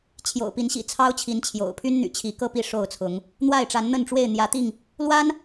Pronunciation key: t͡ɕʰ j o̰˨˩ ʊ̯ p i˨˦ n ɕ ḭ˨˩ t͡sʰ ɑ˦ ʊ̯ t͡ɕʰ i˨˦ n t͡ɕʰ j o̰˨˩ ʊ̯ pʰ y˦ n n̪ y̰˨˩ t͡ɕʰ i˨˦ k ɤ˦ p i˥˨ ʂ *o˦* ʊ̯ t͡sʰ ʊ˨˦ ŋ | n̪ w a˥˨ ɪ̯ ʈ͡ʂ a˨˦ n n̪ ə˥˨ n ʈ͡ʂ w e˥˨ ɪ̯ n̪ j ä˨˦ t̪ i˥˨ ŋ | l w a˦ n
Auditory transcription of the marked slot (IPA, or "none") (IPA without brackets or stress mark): o˥˨